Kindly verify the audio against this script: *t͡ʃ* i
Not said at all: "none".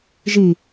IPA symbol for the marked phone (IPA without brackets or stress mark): ʒ